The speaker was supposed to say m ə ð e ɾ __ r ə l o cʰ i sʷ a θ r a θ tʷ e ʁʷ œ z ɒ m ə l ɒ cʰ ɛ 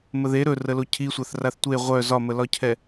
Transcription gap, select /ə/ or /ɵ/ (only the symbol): ɵ